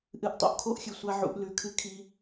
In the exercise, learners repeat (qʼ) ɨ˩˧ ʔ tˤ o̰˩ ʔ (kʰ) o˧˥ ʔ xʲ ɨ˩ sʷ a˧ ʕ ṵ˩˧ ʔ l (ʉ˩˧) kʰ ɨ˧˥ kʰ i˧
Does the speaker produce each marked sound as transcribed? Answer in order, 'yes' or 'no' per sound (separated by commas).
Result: no, yes, yes